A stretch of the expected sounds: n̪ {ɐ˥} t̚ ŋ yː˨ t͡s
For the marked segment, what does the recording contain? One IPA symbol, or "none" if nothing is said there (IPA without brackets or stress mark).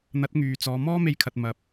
ɐ˨˥